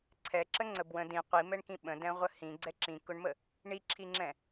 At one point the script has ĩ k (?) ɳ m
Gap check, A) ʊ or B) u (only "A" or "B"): A